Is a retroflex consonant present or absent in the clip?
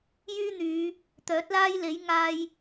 absent